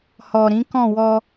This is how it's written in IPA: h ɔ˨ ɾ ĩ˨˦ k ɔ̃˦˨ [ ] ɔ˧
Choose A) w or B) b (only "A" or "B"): A